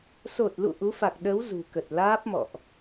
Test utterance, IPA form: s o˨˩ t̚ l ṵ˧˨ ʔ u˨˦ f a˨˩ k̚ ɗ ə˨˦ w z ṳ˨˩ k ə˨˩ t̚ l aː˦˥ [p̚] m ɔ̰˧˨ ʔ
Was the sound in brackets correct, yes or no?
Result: yes